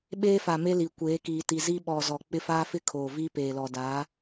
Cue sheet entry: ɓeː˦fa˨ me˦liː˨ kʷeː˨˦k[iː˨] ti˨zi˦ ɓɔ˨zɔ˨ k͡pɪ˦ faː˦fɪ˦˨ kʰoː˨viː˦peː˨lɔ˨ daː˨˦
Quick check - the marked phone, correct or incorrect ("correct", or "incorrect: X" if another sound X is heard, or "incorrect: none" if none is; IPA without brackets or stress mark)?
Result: correct